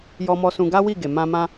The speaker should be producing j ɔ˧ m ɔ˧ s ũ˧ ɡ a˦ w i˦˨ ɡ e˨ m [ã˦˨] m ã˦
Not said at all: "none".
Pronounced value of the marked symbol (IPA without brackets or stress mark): ã˧